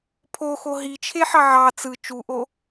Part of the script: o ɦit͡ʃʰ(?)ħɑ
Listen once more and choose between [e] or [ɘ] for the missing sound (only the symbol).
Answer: e